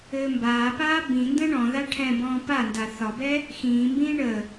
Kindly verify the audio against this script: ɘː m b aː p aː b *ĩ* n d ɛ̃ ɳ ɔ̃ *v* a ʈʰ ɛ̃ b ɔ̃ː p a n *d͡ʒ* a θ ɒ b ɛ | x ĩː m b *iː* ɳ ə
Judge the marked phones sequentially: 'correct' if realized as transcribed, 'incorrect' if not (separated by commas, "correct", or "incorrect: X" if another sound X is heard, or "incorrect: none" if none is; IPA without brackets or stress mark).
correct, incorrect: ð, incorrect: d, incorrect: ĩː